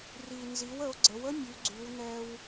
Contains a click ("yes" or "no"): yes